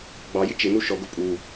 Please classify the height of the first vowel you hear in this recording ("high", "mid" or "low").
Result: low